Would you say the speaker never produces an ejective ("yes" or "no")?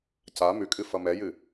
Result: no